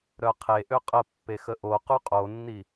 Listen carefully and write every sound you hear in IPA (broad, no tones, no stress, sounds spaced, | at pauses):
ɾ œ qʰ e ʔ ø qʼ ə pː e x ə ʔ o q u qʼ o nː i